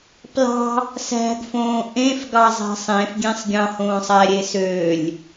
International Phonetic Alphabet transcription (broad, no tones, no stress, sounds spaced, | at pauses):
p l ɑ̤ | s æ̤ ɡ f õː ʔ ẽ f ɡ ɑ zˤ æ̤ sˤ ẽ f ɡʲ ẽ sˤ ɡʲ ɑ̃ h õː sˤ æ ɾʲ e s ø lʲ